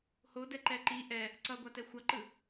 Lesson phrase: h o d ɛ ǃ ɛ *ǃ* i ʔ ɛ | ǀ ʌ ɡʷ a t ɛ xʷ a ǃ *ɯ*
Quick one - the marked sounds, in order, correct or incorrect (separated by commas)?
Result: correct, correct